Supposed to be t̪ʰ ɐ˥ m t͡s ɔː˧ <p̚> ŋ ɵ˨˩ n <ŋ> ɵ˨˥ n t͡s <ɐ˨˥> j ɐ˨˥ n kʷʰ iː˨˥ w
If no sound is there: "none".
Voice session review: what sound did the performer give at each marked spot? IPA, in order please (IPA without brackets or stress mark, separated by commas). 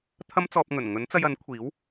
p̚, ŋ, ɐ˧